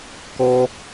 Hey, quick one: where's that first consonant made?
velum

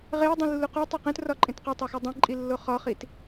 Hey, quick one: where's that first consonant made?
uvula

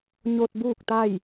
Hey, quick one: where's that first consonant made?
palate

